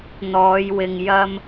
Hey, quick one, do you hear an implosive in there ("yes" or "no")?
no